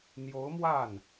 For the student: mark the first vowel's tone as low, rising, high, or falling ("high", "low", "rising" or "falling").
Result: rising